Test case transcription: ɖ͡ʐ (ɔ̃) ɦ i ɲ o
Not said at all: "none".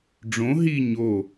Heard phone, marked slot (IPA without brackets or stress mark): õ